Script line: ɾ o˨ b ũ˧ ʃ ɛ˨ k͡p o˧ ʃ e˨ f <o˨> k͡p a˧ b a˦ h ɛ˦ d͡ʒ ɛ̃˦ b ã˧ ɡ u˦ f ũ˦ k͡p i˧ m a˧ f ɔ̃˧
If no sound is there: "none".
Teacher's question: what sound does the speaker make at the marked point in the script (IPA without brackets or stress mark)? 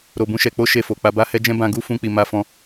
o˨